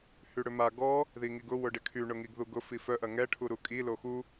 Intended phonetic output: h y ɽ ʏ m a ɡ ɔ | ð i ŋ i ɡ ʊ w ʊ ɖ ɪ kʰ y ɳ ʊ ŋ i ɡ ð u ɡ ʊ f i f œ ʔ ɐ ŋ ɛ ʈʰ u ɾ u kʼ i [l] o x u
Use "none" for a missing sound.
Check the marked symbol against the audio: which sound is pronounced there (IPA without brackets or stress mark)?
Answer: l